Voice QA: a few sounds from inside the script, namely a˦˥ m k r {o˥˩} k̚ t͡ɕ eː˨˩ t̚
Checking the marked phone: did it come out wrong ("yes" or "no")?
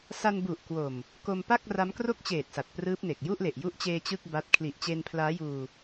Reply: no